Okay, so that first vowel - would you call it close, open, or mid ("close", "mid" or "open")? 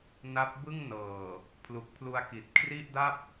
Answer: open